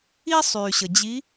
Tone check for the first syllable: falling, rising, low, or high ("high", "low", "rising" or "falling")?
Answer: high